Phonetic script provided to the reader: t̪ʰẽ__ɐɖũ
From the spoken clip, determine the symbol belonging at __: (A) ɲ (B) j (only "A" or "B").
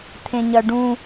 A